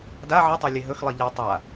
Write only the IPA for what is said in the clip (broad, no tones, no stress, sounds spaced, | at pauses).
d a ʕ ə tˤ a lʲ e ɦ ɵ x lˠ i ʎ e tˤ a